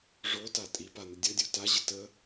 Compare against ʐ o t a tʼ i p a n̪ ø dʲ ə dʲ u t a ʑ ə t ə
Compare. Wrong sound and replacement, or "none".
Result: ø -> ə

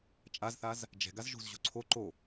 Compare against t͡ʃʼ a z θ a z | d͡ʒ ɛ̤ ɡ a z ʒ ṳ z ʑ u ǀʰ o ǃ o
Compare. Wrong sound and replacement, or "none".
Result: none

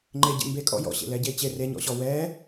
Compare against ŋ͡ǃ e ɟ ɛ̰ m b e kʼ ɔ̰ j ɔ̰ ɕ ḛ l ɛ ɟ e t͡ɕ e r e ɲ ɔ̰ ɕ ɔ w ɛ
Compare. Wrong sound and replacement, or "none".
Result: none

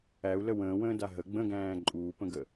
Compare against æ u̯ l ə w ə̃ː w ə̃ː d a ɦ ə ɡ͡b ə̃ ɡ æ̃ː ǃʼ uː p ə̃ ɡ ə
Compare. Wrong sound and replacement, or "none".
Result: none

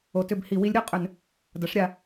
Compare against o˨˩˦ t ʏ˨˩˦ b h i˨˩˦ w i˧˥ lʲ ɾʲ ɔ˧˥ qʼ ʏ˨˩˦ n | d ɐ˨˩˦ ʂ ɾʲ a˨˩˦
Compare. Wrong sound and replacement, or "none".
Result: none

